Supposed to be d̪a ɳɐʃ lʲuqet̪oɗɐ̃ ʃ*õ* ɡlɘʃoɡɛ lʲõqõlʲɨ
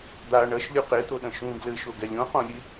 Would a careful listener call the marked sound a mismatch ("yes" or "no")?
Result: yes